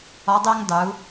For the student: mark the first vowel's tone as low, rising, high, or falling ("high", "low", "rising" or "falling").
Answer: rising